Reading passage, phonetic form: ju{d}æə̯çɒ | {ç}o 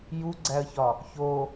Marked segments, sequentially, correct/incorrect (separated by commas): incorrect, correct